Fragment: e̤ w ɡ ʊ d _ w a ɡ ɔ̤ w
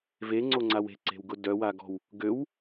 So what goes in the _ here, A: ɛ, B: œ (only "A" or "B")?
B